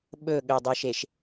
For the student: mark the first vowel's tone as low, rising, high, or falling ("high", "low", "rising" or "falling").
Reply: falling